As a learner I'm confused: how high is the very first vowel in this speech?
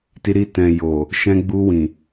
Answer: high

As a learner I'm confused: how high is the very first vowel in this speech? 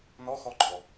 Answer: mid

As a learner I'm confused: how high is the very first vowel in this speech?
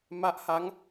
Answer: low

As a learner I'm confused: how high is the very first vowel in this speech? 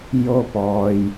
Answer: mid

